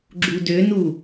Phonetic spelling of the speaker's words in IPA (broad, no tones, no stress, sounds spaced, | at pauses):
ɡ͡ǁ u d ø n u